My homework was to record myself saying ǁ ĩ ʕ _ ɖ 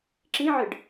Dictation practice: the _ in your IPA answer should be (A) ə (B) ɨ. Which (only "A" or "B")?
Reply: B